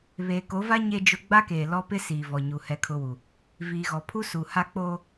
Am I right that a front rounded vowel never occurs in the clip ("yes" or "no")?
yes